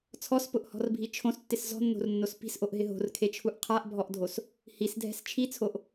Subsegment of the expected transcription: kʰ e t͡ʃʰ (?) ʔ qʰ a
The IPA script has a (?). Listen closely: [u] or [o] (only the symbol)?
u